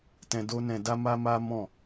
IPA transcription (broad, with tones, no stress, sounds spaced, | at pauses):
t ɛ̃˧ d o˦ n ɛ̃˧ d a˦ m a˦ m a˦ m ɔ̃˦˨